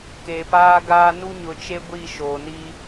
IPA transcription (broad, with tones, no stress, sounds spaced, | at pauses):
k e˨ p aː˦ ɡ aː˦ n u˦ ɲ ʊ˨ t͡ʃ e˦ ɡʷ i˦˨ ʃ oː˨ n i˦